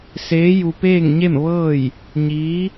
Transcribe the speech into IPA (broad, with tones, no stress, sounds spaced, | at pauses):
s eː˧˥ j u˧ p eː˥˨ ŋ ɲ e˥˨ m ʋ ɤː˥˨ j | ɲ iː˧˥